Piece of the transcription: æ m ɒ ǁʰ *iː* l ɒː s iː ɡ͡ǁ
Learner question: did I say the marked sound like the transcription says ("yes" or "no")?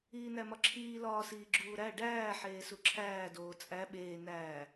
yes